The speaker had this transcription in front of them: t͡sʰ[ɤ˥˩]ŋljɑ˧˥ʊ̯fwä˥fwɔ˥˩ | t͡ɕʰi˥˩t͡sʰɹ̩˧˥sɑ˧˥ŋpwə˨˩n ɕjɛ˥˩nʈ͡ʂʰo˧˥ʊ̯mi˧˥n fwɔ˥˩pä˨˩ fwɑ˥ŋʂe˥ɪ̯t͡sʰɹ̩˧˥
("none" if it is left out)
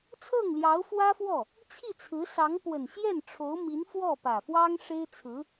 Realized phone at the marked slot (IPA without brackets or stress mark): ɤ˥˩